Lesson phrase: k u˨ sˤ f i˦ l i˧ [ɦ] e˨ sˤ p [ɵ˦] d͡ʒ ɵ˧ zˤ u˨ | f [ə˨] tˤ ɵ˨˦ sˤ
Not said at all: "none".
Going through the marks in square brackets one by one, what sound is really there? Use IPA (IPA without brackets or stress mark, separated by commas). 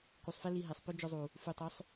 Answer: ɦ, ɵ˦, ʉ˨